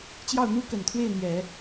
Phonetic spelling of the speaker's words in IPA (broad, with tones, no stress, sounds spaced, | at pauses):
t͡ɕ j ɑ˥˩ ʊ̯ n̪ u˥ k ə˨˩ n t̪ʰ w e˥˩ ɪ̯ n̪ j ɛ˨˩˦